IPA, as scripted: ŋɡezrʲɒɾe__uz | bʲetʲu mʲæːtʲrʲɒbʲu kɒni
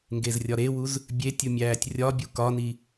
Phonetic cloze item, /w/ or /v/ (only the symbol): w